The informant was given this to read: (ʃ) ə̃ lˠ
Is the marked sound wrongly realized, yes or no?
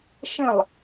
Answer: no